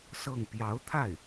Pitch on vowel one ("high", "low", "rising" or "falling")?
falling